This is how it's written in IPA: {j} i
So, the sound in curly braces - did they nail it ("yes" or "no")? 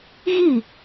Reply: no